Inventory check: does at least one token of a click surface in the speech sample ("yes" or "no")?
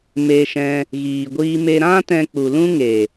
no